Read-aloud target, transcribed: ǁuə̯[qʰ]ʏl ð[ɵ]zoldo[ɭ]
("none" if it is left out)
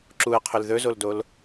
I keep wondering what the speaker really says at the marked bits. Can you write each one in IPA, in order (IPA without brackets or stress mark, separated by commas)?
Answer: qʰ, ɵ, l